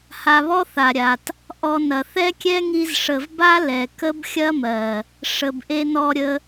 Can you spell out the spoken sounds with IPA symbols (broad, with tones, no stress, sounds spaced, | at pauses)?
h a˧ β ɔ˦ θ a˨ ɾʲ a˨ t | ʔ ɔ˧ n ɐ˨ θ ɛ˦ kʲ ɛ˦ ŋ i˧ z ʂ ə˨ v b a˦ l ɛ˨ k ə˦ b xʲ ɐ˦ m ɜ˨ | ʂ ə˨ b ʔ e˧ n ɔ˧ ɾʲ ə˧